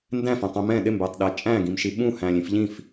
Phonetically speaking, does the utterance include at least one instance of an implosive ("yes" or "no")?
yes